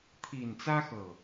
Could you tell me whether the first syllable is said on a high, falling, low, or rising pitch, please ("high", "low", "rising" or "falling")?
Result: low